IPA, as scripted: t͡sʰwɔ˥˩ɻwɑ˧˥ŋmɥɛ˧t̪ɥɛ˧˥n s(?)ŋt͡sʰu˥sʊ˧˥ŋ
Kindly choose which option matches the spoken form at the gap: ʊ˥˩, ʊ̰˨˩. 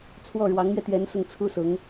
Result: ʊ˥˩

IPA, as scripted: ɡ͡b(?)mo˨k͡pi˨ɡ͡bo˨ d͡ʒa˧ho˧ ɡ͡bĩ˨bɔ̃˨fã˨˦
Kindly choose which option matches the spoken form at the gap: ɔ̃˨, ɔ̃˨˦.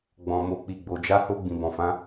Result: ɔ̃˨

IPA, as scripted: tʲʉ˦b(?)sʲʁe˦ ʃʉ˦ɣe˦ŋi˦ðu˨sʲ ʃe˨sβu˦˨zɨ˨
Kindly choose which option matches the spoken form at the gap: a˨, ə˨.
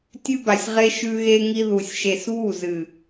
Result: a˨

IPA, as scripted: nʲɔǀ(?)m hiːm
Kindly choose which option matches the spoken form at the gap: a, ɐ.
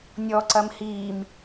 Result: ɐ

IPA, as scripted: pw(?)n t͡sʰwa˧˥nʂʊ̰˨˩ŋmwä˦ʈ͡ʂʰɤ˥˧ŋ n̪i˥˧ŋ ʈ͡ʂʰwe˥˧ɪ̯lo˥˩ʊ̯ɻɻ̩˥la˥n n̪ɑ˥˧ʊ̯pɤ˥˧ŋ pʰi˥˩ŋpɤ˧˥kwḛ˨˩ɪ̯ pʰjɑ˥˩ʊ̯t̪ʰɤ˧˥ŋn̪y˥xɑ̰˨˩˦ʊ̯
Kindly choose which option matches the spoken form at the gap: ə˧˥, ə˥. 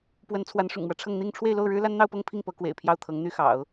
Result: ə˧˥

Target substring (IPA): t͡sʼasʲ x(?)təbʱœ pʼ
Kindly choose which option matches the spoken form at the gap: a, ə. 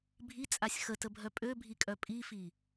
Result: ə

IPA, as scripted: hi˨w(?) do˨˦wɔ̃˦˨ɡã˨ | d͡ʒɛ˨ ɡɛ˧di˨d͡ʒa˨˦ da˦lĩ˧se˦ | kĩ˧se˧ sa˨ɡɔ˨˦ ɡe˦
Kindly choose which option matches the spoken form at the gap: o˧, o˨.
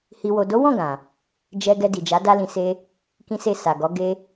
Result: o˨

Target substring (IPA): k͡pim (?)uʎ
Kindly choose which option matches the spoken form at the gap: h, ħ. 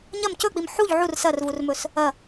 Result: ħ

